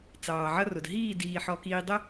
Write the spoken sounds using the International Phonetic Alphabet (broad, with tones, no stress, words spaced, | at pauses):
t͡sɑː˨ʕʌ˦rʊ˨d ɦiː˦˨diː˨ħɔ˨kiː˨ dˤə˦